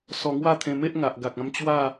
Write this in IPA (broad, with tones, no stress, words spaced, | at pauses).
sɔ˧ŋwa˥˧t̪ʰẽ˧me˦ʔ ŋa˨ʔɡa˨k̚ã˧m t͡ɕwa˥˧